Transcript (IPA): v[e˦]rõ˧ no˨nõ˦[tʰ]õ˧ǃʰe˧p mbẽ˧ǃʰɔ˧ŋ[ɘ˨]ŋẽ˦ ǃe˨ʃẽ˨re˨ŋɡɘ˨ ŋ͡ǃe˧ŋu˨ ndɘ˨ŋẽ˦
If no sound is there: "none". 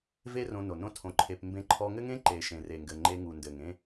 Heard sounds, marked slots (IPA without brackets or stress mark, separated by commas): e˦, tʰ, ɘ˦